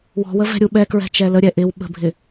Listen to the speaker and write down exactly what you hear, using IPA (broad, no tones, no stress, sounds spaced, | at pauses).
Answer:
w ɔ̤ w ə v ɛ̤ ɾʲ u ɓ ɛ k ɹ ɛ̤ t͡ʃ ɛ l ə ɾʲ ɛ ʔ ɪ w ɓ ə̤ bʱ ɪ